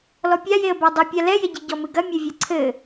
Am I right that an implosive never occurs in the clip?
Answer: yes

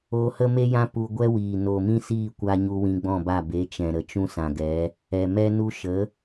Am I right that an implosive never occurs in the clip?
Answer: yes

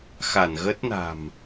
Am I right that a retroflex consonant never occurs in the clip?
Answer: yes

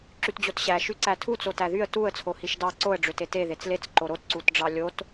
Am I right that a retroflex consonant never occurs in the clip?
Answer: no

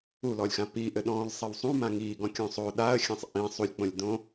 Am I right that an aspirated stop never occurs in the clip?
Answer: yes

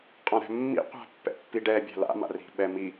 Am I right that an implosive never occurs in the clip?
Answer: no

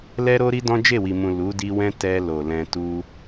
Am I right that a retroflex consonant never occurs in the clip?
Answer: yes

